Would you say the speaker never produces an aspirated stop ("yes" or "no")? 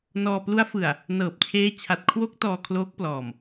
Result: no